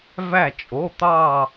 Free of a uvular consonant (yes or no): yes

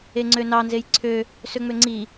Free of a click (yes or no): no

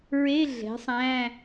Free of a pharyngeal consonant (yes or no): yes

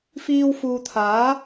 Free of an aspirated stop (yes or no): no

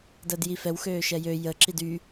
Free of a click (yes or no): no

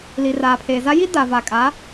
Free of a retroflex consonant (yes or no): yes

